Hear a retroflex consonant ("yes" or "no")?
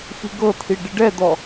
yes